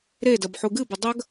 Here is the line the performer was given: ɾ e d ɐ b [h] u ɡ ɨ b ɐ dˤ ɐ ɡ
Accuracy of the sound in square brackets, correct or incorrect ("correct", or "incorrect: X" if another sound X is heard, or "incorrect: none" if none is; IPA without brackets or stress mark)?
incorrect: ħ